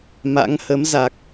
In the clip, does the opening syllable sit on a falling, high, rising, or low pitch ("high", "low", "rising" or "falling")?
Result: rising